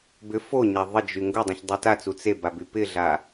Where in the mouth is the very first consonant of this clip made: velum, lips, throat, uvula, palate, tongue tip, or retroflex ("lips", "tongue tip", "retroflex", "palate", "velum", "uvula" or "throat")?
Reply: lips